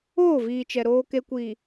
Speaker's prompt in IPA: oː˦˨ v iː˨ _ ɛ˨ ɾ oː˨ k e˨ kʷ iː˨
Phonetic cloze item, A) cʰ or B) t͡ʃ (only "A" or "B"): B